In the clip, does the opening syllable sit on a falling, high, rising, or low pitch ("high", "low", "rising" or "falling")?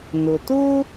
low